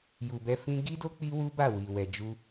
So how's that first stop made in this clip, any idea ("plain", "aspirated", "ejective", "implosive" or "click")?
plain